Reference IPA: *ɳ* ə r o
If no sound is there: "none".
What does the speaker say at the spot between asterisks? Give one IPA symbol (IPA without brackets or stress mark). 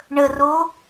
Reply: ɳ